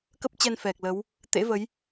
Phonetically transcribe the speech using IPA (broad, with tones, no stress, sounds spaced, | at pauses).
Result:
k ə˦˥ p̚ t͡ɕ ɛ˧ n f ɛ˨˩ k̚ l ə˨˦ w | t̪ ḛ˧˥ v ə˨˦ j